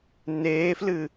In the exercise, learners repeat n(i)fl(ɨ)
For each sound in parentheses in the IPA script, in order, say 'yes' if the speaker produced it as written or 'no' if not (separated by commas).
no, yes